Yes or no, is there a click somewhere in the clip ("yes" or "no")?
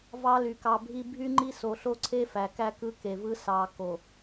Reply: yes